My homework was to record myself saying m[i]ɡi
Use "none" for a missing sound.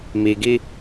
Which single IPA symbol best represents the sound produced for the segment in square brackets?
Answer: i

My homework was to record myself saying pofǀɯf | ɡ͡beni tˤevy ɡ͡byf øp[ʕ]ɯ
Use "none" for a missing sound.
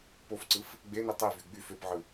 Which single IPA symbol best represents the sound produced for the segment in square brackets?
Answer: ʕ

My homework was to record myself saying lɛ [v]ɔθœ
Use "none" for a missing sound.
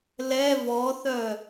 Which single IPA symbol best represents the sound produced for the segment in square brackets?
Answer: v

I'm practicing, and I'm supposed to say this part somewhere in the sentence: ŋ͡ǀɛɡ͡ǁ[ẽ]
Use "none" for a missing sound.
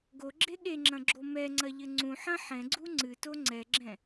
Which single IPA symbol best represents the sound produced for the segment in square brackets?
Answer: ɛ̃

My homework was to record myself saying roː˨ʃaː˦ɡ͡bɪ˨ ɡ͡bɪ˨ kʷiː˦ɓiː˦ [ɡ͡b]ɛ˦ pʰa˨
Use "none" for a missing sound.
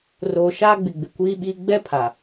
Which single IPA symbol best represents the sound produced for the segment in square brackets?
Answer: ɡ͡b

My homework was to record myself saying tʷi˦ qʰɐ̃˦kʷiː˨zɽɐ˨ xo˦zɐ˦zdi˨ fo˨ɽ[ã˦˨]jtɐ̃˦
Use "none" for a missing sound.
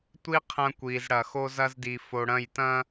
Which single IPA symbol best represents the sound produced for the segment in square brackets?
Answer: ɐ̃˦˨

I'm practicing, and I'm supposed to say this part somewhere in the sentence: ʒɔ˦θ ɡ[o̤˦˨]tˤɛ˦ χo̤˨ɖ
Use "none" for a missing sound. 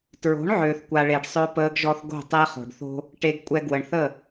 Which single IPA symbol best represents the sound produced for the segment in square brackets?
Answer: o̤˦˨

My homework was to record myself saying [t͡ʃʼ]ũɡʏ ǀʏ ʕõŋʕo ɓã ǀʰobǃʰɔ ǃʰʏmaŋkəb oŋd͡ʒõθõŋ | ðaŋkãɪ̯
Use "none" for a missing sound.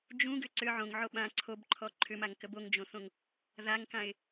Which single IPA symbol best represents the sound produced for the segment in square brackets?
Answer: d͡ʒ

